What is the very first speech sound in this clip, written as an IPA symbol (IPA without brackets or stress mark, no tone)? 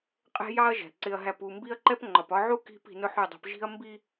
qʼ